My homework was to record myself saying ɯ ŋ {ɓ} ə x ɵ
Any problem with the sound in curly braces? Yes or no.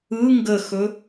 yes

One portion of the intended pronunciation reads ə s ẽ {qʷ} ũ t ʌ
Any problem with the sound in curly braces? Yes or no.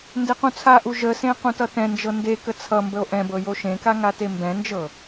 yes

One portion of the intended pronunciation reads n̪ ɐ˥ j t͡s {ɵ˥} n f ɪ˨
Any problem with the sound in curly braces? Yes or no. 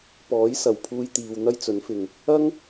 yes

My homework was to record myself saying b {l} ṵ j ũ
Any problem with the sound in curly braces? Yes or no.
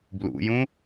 no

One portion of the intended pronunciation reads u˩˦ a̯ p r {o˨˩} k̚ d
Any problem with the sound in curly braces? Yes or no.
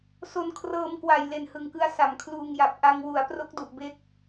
yes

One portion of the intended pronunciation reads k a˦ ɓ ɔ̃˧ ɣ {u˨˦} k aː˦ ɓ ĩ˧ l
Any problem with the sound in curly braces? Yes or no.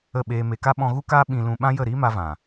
yes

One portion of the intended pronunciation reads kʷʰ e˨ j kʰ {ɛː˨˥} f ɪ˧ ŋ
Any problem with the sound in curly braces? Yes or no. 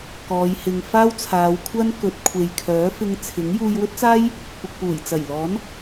yes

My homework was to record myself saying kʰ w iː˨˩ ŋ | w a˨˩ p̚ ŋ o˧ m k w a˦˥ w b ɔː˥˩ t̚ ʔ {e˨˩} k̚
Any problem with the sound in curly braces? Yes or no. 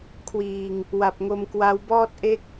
yes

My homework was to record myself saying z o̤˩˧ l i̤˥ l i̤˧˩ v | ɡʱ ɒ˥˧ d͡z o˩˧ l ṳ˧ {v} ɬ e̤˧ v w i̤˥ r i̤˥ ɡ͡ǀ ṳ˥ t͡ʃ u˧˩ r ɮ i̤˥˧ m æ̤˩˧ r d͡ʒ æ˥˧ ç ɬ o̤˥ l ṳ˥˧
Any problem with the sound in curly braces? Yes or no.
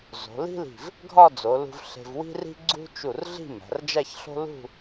no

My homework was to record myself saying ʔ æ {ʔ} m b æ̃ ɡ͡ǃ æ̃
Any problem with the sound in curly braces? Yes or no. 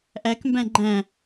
yes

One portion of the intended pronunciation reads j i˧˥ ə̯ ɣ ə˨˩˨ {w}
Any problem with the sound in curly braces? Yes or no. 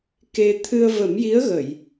yes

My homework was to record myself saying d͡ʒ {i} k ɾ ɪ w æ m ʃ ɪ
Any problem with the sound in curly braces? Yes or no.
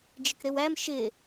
yes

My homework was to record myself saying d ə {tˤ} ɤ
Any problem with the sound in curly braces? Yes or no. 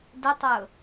no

